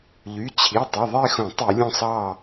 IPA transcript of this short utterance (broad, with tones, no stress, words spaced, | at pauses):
ʎy˩˧˩ t͡ɕʰi˩˧˩tˤi˩˧˩ ðˤe˥˨xõ˧˩˧tˤi˧˩˧ lʲõ˥˨sˤɑ˥˨